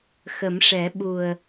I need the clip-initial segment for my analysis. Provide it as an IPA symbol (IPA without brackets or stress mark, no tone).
x